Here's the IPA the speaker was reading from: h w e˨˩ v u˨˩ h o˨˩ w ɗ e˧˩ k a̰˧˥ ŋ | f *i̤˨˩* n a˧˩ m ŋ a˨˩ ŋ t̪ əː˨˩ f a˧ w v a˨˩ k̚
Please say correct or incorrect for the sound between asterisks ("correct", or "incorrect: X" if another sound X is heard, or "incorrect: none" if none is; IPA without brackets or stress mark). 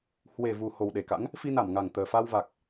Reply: incorrect: i˧